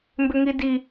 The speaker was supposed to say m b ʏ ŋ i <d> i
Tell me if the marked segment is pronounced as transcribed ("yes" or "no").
yes